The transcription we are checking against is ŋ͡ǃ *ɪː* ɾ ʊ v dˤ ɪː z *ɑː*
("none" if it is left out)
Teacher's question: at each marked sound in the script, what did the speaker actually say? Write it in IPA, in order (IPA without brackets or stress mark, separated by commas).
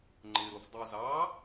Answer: ɪ, ɑː